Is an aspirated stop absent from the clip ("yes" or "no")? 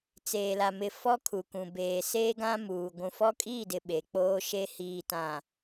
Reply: no